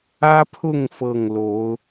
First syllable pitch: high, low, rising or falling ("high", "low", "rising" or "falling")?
high